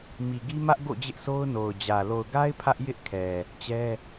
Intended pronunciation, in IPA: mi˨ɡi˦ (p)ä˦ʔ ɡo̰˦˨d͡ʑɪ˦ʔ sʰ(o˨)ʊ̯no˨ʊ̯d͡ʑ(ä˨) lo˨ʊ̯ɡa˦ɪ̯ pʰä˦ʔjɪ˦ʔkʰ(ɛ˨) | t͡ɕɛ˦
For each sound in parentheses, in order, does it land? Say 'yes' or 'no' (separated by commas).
no, no, yes, yes